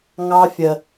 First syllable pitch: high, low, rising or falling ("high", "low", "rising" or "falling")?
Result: high